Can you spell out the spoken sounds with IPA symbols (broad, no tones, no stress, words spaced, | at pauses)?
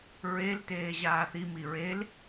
ɹel teːʑaːθi miɹel